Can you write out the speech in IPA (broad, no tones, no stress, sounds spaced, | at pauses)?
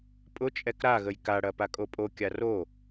pʼ ʊ t͡ʃʼ ɛ k ɾ a ɣ ə j k a ɽ ɐ p a kʼ o pʼ o kʲ a r o